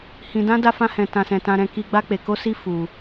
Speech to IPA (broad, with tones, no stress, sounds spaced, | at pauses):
h ĩ˧ d ã˦ d a˦ f ã˦ h ɛ̃˧ t ã˧ s ɛ̃˧ t ã˧ ɾ ɛ̃˧ k i˧ ɡ͡b a˦ k͡p e˧ k o˦ s i˦ f u˧